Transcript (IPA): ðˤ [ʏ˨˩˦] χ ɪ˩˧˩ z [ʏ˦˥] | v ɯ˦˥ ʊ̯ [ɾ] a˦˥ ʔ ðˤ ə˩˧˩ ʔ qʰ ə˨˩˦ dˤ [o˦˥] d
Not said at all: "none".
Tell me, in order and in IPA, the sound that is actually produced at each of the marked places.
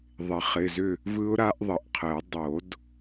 ɪ˨˩˦, ʏ˥˨, ɾ, o˨˩˦

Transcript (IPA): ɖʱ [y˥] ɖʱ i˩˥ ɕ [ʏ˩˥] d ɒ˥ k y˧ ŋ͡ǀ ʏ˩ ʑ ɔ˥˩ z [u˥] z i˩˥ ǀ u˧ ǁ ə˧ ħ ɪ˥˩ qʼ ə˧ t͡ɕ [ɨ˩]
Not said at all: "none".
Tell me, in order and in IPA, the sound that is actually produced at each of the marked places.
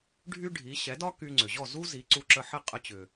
y˥, ɛ˩˥, u˥, ʏ˩

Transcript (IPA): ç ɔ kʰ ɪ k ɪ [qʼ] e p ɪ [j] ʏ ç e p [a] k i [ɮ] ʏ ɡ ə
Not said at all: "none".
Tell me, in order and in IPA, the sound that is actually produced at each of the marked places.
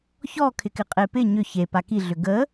qʼ, ɲ, a, ɮ

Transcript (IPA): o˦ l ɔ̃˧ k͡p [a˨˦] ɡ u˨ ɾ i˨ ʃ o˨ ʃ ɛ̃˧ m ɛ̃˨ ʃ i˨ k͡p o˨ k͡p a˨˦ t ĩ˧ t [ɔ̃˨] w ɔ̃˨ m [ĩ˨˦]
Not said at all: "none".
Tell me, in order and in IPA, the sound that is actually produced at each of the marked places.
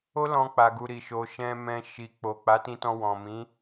a˨, ɔ̃˧, ĩ˨˦

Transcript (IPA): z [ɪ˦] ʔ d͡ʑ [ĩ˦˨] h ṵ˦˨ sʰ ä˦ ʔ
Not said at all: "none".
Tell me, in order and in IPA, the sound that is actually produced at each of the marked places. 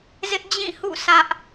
ɪ˦, ĩ˦˨

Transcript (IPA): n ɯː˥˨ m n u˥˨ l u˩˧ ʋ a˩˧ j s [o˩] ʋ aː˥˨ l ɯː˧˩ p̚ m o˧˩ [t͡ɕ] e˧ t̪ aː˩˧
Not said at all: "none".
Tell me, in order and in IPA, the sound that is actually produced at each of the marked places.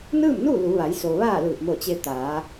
o˩, t͡ɕ

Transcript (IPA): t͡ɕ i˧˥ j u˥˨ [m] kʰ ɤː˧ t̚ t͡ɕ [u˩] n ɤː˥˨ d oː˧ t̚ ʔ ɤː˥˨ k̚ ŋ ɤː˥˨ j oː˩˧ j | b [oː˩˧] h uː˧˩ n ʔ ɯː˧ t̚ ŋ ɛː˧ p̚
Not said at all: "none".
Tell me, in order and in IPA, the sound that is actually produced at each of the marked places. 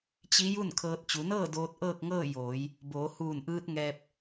n, u˩˧, oː˩˧

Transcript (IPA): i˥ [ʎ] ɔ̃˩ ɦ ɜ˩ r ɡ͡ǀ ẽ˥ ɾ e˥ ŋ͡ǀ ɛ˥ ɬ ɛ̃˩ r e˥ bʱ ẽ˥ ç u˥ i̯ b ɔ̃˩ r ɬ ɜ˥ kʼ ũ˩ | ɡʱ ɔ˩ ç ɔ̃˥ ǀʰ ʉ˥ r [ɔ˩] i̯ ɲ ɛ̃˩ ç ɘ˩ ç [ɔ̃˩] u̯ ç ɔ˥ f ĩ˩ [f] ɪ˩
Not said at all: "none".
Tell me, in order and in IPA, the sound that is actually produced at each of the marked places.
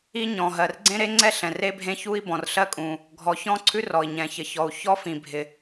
ɲ, ɔ˩, ɔ˩, bʱ

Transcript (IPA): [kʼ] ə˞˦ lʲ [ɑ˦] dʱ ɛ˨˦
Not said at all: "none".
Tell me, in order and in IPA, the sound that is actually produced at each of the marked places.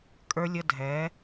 kʼ, ə˦

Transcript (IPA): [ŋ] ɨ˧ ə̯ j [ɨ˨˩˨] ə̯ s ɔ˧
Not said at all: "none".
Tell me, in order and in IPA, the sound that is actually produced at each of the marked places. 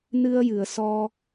n, ɨ˨˩˨

